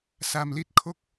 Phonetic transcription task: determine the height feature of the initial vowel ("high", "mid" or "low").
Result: low